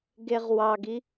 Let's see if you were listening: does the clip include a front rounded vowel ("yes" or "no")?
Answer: no